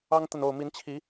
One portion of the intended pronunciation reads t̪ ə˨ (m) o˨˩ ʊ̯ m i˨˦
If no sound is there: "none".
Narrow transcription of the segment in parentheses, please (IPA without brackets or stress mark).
n